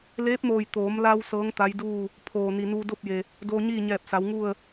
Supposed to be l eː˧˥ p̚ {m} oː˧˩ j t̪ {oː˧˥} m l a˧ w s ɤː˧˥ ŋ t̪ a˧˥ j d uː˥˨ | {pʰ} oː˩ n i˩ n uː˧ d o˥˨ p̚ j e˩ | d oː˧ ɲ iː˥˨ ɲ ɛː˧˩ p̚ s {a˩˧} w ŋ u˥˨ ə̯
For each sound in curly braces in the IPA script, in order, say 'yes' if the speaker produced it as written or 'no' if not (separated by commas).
yes, no, yes, yes